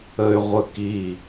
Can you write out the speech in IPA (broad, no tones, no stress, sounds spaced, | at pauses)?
ə y̯ ʁʷ ə k i